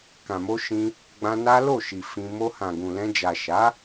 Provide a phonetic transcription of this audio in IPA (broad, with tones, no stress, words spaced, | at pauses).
kã˨mo˧ ʃĩ˧ | ɡ͡bã˧na˦lo˦˨ʃi˨ fĩ˧ mo˧hã˨ɡũ˨lɛ̃˧ d͡ʒa˨ ʃa˨˦